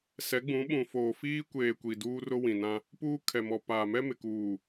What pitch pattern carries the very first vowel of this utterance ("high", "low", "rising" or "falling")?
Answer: rising